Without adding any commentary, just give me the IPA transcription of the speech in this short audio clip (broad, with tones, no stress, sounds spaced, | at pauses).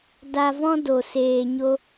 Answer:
d a˧ v ɔ̃˦ d o˨ s eː˨ ɲ o˧